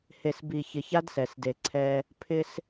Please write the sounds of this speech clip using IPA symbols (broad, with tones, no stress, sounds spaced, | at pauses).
h e˨ s b i˨ ç ɪ˨ ç a˦ d s ɛ˨ s d e˨ ǀʰ ɛ˦ | pʰ ɪ˦ s